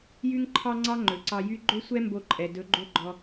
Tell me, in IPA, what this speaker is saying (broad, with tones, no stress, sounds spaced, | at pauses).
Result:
j y˦ ŋ ǃʰ ɑ˦ ŋ͡ǀ ɑ˦ ŋ͡ǃ ɵ˨ ǀ ɑ˧ j y˦ ɡ͡ǃ ɵ˦ sʷ ɛ˦ m b o˧ ǃʼ ɛ˨ d ɵ˨˦ ɡ͡ǃ o˦ ɡ͡ǃ ɔ˧